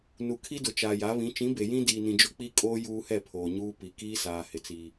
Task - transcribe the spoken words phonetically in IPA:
n u˨ kʰ i˦ d ʊ˨ t͡ʃ aː˨ j a˨˦ β ĩ˨˦ t͡ʃ ĩ˨˦ b e˨ j ĩ˦ d iː˨ n ĩ˨ d͡ʒ ʊ˦ k͡p i˦ kʼ oː˦ j uː˦ h ɛ˦˨ pʰ oː˨ ɲ uː˦ p i˨ k iː˦ s aː˨ h ɪ˦ t͡s iː˦

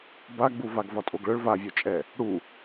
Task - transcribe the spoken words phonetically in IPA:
b a ɡ͡b u v a ɡ v ɒ tʼ o ɡ ɭ œ ɭ v a vʲ o t͡ʃʼ ɛ | ɽ u

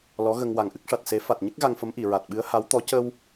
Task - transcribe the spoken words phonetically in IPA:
l ɔ˧˥ ɣ ə˧ ŋ w a˨˩ ŋ ʔ ɨ˦˥ k̚ ʂ a˨˩ t̚ s e˨˩˦ f a˨˩ t̚ ɲ ə˦˥ k̚ ɣ a˧ ŋ f ə˧˥ m ʔ i˨˩˨ ɹ a˨˩ t̚ ɓ ɨ˧˥ ə̯ h a˧˥ w t̪ ɔ˧˥ c ə˧ w

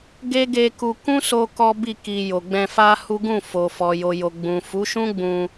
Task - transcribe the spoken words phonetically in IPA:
ɡ e˦ ɡ e˧ k u˧ k ũ˦ s o˧ k ɔ˦ b i˦˨ k i˨ j o˨ ɡ͡b ɛ̃˧ f a˦ h u˦ ɡ ũ˦˨ f o˨ f ɔ˨ j o˨ j o˨ ɡ͡b ũ˨ f u˨˦ ʃ ũ˦ ɡ͡b ũ˧

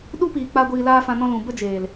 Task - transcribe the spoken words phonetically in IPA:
ɗ u˦ p iː˨ k͡p a˧ ɡʷ iː˧ l aː˦ f ã˧ n ɔ̃˦ l ũ˨ b ə˦ d͡ʒ eː˨ l

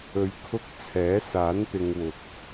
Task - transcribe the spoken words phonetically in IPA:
ɵ˨ ɥ kʰ ʊ˧ k̚ t͡sʰ ɛː˨˥ s aː˨˥ n t̪ ɪ˧ ŋ w ʊ˨ k̚

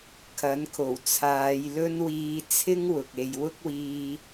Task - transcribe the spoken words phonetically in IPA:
kʰ ɐ˨˥ n kʰ o˨˩ w t͡sʰ aː˨˧ j l ɵ˥ n w iː˧ t͡sʰ ɪ˥ ŋ w ʊ˨ k̚ e˧ j w ʊ˥ k̚ w iː˧

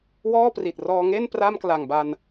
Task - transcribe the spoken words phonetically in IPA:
w ɔː˥˩ p r i˨˩ t̚ r ɔː˧ ŋ e˥˩ n p r a˥˩ m k l a˨˩ ŋ b a˧ n

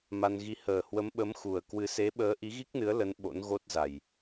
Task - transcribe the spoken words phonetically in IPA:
m a˧ n ɣ i˧ h əː˨˩ h w ə˨˦ m ɓ ə˨˦ m x u˨˩ ə̯ k w ɨ˧ s e˨˦ ɓ əː˨˦ ʔ i˨˦ ɣ i˦˥ k̚ n ɨ˨˦ ə̯ l ə˨˦ n ɓ o̰˧˥ n ɣ o˦˥ t̚ z a˨˩ j

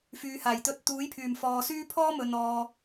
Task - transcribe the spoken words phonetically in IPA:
f yː˨ h aː˨˩ j t̪ ɵ˧ t̚ t̪ uː˨˥ j pʰ yː˨˩ m f ɔː˨ s yː˥ pʰ ɔː˥ m ɵ˨ n ɔː˨

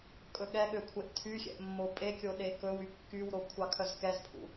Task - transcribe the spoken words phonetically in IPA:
kʼ ɵ ɠ ɛ ɠ ø kʷʰ e ʔ tʰ y xʲ ɛ̰ ʔ mː o pʼ e kʲ o ɗ e k ɵ w y kː y w ɾ o kʷʰ ɑ kʰ œ z k ɛ z pʰ ṵ

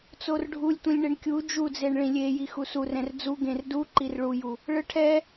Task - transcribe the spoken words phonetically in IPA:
t͡s o r ɖʱ u lʲ tʷ ĩ lʲ ɳ e ɳ kʲ u d͡ʒ u d͡z e ɳ ɭ ĩ lʲ e j i x u s u r ɛ̃ r d͡z u ɡ ẽ r d u ǃ i r ɭ u j u | ɭ ɯ ʈʰ ɛ

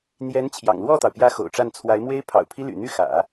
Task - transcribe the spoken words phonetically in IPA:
n̪ j ɛ˧˥ n t͡ɕʰ j ɑ̰˨˩ ŋ l w ɔ˥˩ t̪ ɑ˩ ʊ̯ p j ä˧˥ x o̰˨˩ ʊ̯ ʈ͡ʂ a˥˩ n t͡sʰ w a˧˥ ɪ̯ m w e˥ ɪ̯ pʰ ɑ̰˨˩ ʊ̯ pʰ i˥ l y̰˨˩ n̪ y˥˩ x ä̰˨˩˦

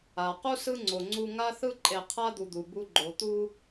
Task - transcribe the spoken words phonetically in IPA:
a˩ q u˥ s ɯ˥ ŋ͡ǀ o˨ ŋ͡ǀ u˦ ŋ a˥ θ ɯ˥ ǃʼ e˨ qʰ a˥ d̪ u˨ d̪ u˩ b u˦ ɡ͡ǃ o˨ t̪ u˦

